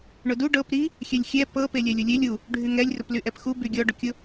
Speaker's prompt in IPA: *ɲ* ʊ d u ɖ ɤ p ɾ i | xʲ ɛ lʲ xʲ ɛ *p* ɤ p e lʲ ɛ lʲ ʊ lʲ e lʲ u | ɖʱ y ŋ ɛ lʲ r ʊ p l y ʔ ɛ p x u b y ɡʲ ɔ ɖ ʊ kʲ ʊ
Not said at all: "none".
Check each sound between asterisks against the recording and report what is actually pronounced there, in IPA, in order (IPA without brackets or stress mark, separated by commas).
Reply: ɳ, p